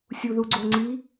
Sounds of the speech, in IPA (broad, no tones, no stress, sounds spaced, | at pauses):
sʲ u ð u ɡ͡ǀ o ŋ͡ǀ i